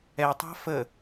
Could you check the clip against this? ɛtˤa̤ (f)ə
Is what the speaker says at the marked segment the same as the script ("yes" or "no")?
yes